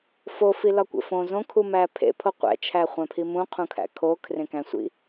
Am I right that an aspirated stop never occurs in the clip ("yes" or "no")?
no